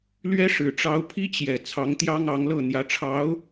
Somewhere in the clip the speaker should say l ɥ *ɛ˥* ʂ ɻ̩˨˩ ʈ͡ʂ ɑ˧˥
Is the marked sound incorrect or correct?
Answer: correct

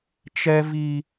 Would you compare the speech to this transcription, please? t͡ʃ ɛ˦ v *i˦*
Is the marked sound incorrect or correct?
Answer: correct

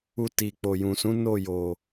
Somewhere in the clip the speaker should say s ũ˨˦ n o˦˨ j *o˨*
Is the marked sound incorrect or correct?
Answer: correct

